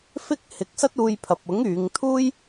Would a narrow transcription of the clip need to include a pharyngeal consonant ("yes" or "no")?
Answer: no